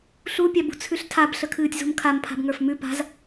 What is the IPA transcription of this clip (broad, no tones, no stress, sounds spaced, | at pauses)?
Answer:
ɬ u pʲ a b ṳ t͡sʰ ʉ ɬ tʰ a b ɬ ə kʰ ɨː tʲ z ṳ m kʰ a m pʰ a̤ b ŋ ə˞ f m ʉ p a̤ z